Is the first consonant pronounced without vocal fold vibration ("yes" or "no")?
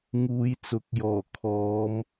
no